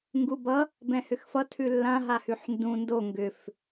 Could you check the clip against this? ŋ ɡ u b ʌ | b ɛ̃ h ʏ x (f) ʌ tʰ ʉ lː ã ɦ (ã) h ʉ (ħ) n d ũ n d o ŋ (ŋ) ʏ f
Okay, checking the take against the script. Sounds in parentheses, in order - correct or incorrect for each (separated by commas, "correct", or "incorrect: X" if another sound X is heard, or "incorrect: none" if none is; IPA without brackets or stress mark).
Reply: correct, incorrect: a, correct, incorrect: ɡ